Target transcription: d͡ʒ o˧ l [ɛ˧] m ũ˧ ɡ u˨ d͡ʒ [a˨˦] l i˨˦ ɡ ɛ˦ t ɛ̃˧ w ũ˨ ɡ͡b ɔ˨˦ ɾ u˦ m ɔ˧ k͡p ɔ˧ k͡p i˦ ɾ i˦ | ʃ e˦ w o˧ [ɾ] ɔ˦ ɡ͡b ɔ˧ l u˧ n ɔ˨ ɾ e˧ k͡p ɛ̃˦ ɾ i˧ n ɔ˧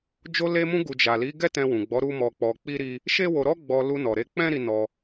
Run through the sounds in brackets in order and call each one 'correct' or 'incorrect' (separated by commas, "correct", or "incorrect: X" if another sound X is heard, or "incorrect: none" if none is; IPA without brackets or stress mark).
incorrect: e˧, incorrect: a˨, correct